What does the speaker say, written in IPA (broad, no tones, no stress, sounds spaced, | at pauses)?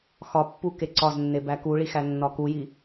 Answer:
x ɒ pː u k e ǀ ɒ z nː e b æ k u ɭ i x æ nː ɒ k u j i